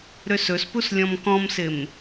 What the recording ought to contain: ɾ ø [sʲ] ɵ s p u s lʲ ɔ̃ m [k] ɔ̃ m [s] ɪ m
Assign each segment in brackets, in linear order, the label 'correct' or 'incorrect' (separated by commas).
incorrect, correct, correct